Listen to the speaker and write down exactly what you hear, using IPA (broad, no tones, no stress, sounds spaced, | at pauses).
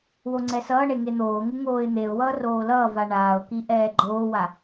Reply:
w o ŋ͡ǀ ɛ s ʌː ɳ e ŋ e n̪ oː ŋ u ŋ oː ɪ̯ n̪ e ʊ̯ w ʌː r oː l ʌː v a ɳ aː ʊ̯ k i ʔ ɛː ɡ͡ǃ oː w a